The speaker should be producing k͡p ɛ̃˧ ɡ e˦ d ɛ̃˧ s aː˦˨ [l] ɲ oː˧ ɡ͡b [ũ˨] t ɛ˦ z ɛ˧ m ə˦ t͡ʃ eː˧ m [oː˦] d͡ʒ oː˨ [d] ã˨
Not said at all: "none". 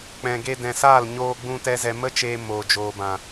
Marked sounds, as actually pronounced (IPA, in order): l, ũ˧, oː˨, b

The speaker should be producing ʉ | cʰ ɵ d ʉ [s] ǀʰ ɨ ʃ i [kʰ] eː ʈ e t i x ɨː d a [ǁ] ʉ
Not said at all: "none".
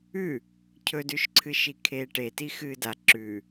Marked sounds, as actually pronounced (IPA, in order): ʃ, kʰ, ǁ

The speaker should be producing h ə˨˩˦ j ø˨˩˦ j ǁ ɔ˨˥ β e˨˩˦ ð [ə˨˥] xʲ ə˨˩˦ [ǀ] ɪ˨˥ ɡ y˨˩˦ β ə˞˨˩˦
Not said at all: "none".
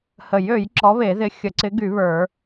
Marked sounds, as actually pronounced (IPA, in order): ɪ˨˥, ǀ

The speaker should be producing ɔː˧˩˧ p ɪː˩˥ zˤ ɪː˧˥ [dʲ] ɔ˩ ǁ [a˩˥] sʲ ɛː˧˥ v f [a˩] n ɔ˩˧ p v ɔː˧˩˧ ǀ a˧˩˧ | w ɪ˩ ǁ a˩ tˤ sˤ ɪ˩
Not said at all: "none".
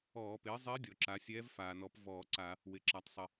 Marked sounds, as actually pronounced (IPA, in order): dʲ, a˩˧, aː˩

